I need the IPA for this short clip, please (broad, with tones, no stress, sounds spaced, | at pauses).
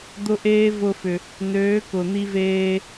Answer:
d̪ ʊ˦ ʔ eː˦ v ʊ˧ f ʏ˨ | n øː˨˦ k ʊ˨ n̪ i˧ v eː˧